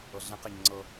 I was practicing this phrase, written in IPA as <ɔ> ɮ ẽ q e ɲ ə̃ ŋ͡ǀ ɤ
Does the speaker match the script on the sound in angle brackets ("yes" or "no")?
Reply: no